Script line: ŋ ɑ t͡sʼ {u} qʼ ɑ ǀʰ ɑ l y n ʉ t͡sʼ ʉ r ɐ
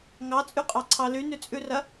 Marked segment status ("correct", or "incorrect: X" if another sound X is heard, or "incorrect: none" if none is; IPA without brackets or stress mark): incorrect: ʉ